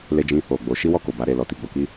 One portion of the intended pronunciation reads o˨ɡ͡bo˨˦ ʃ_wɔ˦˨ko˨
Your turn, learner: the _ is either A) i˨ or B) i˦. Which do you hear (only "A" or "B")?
B